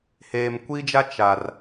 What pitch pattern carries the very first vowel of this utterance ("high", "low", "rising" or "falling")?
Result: low